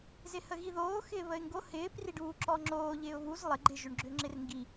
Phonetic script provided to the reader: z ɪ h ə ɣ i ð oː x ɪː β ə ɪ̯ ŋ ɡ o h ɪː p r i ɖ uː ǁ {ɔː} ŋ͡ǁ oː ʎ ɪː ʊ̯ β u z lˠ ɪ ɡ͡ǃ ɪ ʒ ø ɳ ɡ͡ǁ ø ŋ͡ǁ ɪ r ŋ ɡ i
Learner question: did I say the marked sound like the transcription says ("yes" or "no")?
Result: no